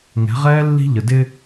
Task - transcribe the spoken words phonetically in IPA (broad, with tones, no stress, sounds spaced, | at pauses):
ŋ ɛ̤˨˦ ʁ ɛː˦ lː i̤˦ ʎ ə˨ d ɪ˦